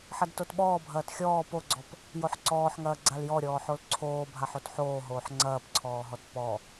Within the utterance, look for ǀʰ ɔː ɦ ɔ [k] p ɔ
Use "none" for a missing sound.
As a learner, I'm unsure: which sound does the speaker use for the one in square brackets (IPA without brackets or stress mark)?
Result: t